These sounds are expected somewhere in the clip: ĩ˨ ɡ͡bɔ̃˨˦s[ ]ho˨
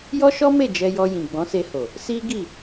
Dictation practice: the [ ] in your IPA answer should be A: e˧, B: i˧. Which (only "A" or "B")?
A